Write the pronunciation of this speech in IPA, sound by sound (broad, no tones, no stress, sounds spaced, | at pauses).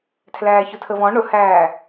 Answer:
tʰ l æː ç ʊ tʰ ə v ɔ̃ ɳ ʊ h æː